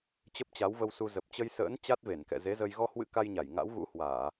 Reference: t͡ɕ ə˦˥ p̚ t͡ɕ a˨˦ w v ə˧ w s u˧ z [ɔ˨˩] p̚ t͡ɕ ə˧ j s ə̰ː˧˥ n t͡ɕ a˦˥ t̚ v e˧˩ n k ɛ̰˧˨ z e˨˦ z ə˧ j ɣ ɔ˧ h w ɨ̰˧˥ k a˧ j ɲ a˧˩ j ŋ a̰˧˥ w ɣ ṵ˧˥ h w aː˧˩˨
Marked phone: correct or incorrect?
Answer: incorrect